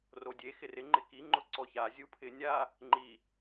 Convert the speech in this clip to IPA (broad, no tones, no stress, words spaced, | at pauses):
rodʲe xɪrɪ ŋ͡ǃɪki ŋ͡ǃʊǀɔça zʲupʰɪnʲa | ŋ͡ǃi